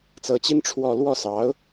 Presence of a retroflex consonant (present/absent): present